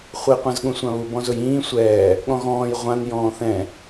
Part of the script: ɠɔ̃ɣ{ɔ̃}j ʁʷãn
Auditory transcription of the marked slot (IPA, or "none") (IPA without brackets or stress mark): ɔ̃ː